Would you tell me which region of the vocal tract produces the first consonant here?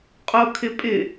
uvula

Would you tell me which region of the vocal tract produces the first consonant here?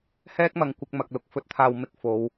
throat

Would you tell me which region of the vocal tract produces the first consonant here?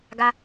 velum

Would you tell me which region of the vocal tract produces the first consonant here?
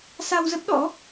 tongue tip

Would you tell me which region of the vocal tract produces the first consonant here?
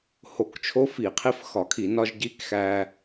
throat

